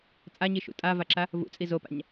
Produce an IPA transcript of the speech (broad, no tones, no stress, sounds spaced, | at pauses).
t͡sʼ a ɲ i ʃ ṵ tʼ a v a ǁ a | v ṵ t͡sʼ i z o p a̰ ɲ